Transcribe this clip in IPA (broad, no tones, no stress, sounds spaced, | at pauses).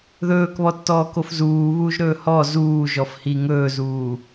ð ɵː k β ɔ tː ɔː k o f z uː β uː ʒ ɾ ɵː h ɔ z uː ʒ ɔ f h i ŋ ɵː z uː